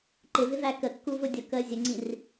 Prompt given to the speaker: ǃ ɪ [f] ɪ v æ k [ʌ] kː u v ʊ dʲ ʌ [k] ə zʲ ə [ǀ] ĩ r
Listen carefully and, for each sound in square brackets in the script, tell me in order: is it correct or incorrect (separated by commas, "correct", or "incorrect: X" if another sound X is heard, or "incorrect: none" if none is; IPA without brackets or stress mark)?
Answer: incorrect: v, incorrect: ə, correct, incorrect: ŋ͡ǀ